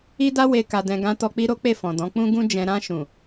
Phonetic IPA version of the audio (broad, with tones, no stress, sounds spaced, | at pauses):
i˦ d a˦ w e˧ k a˨ d ɛ̃˨ ɡ ã˧ t ɔ˧ k͡p i˦ ɾ o˦ k͡p e˦˨ f ɔ̃˨ d ɔ̃˨˦ k͡p ũ˦ ɡ ũ˦ d͡ʒ ɛ̃˧ ɾ ã˧ ʃ ũ˨